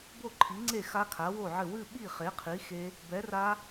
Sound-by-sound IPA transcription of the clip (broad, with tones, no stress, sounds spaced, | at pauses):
b o˥˨ ǃʰ i˨˥ ŋ͡ǀ e˥˨ x a˦˥ kʰ a˨˥ w o˥˨ ʕ ɘ˥˨ w ɨ˥˨ ɓ i˥˨ χ e˨˥ qʰ i˨˥ x e˦˥ | b ɛ˨˥ r a˦˥